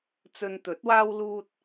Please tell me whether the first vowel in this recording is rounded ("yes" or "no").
yes